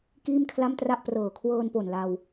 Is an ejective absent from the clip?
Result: yes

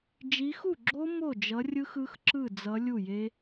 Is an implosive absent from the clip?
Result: yes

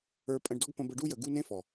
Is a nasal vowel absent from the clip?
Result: no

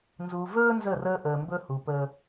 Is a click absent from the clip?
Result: yes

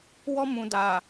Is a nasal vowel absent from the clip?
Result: no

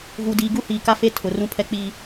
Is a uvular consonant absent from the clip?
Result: yes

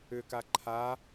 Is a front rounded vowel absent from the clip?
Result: no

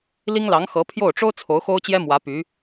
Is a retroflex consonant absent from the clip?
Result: no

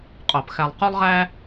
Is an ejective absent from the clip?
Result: no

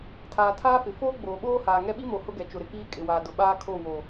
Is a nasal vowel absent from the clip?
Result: yes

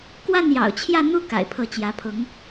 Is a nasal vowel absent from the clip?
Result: yes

